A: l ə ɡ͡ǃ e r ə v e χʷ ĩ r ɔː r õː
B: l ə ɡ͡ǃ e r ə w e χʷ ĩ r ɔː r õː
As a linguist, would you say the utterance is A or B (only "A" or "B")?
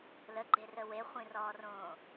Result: B